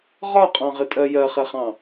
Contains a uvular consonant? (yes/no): yes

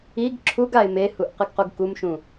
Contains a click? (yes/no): yes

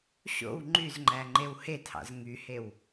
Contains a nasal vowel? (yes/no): no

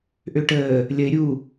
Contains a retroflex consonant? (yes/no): yes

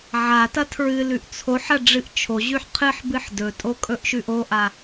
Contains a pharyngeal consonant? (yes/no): yes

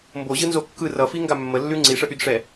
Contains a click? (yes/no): yes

